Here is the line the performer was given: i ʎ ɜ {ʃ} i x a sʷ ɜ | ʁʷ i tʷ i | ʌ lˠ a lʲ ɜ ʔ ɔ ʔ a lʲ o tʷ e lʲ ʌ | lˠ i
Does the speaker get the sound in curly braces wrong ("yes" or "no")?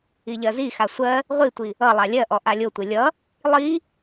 yes